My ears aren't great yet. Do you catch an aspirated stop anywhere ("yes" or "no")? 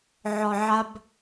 no